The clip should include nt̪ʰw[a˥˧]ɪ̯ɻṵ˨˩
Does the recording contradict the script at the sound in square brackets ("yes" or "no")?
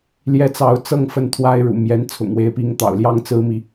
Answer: yes